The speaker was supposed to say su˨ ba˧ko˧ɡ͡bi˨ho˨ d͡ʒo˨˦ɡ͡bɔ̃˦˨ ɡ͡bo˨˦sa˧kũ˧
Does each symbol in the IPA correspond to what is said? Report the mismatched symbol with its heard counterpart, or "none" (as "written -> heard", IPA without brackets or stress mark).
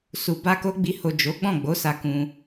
none